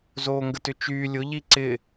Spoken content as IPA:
zoːŋɡətʏt͡ʃyː lʲʊ ʎiǀɪ

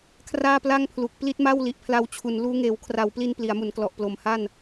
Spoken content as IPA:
kʰraː˥˩pla˥˩ŋpʰlu˨˩k̚ pli˦˥t̚ma˥˩wli˨˩ʔpʰla˧w t͡ɕʰu˩˦nluː˦˥ ŋeː˩˦wkʰra˩˦wpli˧n pli˩˦a̯mu˩˦nklɔ˨˩ʔ plo˨˩mha˥˩n

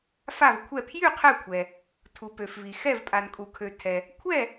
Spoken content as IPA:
fa˥˨vkʷʰɛ˥˨ pʰjy˥˨ qʰɛ˥˨kʷʰɛ˨ | tʰu˨pø˨fvi˨ xɛ˥˨vpʼa˨n kʼu˨kʰø˨ tʰɛ˨ | kʷʰɛ˥˨

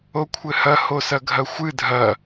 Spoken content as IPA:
okʷʰɘhɐ hosɐɡʱɐxʷɨ dʱɐ

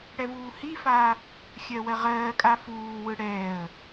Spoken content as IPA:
ɽɛvuːhifaː | xʲɜwɜʁɜːkʼa fuːwɯ ɽɛːə̯

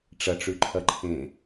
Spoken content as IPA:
ʈ͡ʂɐʈ͡ʂʉǃʰɐ ǃʰẽ

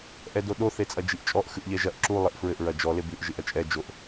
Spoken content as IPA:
ʔɛdoɗo θet͡sʼɐd͡ʒiʔt͡ʃʼɔʔ xɨʔʎɛʒɐʔ ǁu lˠɘʔfɹɘʔ ɹɐd͡ʒɔ lebɨʔ ʒɨʔɐt͡ʃʼɛ d͡ʒoʔ

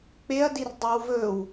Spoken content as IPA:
k͡peɐ̯dir dˤʉwvɵw

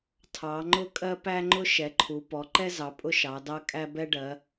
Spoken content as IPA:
tʰɑ˩˧ŋ͡ǃʊ˦kʼɜ˦ pæ˦ŋ͡ǃʊ˦ ʃɛ˩˧ǃʰu˩˧ pɔ˩˧ǃɛ˦zɑ˩˧ pʼʊ˦ʃɑ˩˧dɑ˦ kʼæ˦ bɛ˦ɖɜ˩˧

